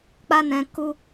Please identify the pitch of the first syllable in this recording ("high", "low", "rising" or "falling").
high